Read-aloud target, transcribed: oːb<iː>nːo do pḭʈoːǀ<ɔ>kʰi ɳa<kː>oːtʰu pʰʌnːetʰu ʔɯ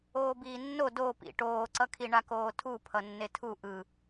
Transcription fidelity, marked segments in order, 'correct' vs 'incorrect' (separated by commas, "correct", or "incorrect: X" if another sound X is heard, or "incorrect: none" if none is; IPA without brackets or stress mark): correct, incorrect: ʌ, incorrect: k